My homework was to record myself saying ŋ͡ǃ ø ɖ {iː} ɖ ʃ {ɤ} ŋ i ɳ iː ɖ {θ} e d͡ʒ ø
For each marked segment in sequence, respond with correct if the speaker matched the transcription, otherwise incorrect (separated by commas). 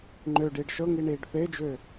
correct, correct, correct